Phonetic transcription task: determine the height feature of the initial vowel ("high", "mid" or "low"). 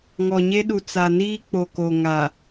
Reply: mid